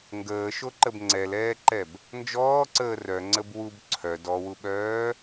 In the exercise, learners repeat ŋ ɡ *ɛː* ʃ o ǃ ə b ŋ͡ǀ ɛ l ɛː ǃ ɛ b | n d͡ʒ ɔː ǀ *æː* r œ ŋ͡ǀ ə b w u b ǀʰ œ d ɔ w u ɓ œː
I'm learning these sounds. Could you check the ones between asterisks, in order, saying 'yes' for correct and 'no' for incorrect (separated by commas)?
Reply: no, no